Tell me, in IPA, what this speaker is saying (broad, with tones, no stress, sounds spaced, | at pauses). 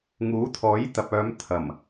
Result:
ŋ uː˨˥ t̪ʰ ɔː˨˥ j t̪ ɐ˨ p̚ œː˨˧ m t̪ʰ ɐ˨˩ m